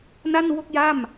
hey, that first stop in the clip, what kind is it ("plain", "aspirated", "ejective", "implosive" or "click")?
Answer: plain